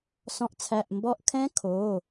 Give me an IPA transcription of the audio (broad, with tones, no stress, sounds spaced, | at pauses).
s ɔ̃˩˥ ʔ t͡sʰ æ˩˧˩ ʔ m b ɔ˧˥ ʔ kʰ ɛ̃˧˥ kʰ o˩˧˩